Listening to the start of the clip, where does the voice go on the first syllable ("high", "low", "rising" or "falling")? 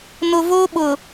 low